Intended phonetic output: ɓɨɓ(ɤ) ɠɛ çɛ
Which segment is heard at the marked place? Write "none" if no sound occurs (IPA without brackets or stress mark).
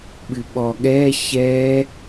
ɔ